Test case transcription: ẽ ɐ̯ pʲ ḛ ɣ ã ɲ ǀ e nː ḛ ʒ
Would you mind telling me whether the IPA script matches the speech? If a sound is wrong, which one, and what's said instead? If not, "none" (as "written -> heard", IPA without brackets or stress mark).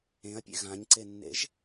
none